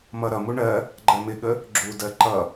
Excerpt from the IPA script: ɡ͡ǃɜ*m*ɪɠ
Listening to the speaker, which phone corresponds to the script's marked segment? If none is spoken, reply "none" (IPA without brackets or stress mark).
m